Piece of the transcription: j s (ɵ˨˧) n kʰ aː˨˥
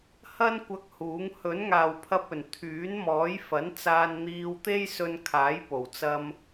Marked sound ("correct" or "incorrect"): incorrect